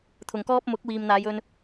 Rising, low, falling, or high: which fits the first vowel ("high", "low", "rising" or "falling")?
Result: low